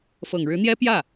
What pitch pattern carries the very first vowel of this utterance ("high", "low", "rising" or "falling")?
low